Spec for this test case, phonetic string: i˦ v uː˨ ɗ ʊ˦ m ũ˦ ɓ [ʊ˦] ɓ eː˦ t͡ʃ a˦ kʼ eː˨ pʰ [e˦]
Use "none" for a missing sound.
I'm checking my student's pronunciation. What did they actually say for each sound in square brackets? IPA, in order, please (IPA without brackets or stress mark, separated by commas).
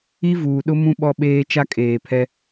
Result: ɔ˦, ɛ˦